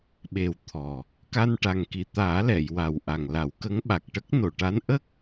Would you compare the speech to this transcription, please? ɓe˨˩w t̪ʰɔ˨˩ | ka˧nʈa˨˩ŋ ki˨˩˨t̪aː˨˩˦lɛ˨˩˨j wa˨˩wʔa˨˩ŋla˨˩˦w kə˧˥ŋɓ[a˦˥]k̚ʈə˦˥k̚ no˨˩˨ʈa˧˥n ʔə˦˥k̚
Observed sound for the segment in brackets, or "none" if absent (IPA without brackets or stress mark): a˨˩